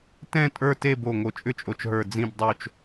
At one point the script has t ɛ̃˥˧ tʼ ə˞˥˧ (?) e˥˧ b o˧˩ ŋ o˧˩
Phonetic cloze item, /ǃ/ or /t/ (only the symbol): t